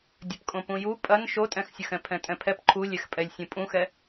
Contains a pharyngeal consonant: no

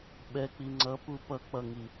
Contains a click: yes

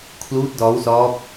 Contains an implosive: no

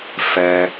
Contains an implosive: no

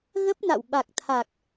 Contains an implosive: yes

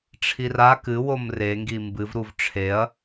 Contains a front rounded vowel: no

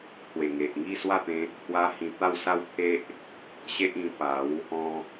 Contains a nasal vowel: yes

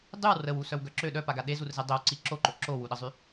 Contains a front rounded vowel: yes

